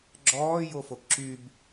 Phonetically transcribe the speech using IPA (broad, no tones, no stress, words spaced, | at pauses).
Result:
ɡ͡ǁɔː jofokǁyb